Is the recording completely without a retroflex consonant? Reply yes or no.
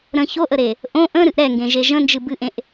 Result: yes